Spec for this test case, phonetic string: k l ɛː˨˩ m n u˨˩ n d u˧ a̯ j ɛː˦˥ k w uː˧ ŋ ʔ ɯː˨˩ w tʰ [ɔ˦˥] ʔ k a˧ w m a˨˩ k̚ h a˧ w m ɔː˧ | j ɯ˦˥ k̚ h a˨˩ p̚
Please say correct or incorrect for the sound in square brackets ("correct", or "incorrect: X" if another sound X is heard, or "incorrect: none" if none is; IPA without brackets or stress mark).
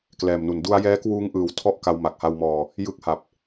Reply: incorrect: ɔ˥˩